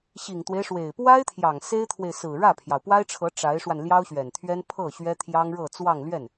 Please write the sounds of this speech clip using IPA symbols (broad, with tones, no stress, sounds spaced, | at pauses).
ɕ i˨˩ ŋ t̪ w e˦ ɪ̯ ʂ w e˨˩ ɪ̯ p w a˥ ɪ̯ t̪ʰ j ɑ˨˩ ŋ s e˥ ɪ̯ t̪ʰ w e˨ ɪ̯ s ɹ̩˨˩ ɻ ä˥˩ pʰ j ɑ˩ ʊ̯ p w a˥ ɪ̯ ʈ͡ʂʰ ɤ˧˥ ʈ͡ʂ a˧˥ ɪ̯ ʂ w a˧ n l j ɑ˥ ʊ̯ ɕ ɥ ɛ˨˩ n t̪ʰ ɥ ɛ˥ n pʰ ɤ˥˩ ɕ ɥ ɛ˥ t̪ʰ j ɑ˥ ŋ ɻ ɤ˥˧ t͡s w ɑ˥˧ ŋ l ɥ ɛ˥˩ n